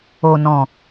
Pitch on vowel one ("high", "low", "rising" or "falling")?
low